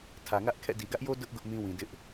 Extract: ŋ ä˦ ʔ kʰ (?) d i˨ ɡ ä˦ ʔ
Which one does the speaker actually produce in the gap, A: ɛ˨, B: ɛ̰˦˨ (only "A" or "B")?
B